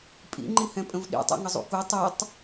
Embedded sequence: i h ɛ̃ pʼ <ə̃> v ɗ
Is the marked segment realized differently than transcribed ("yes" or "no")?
no